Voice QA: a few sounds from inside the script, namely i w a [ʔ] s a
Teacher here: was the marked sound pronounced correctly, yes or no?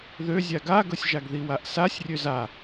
yes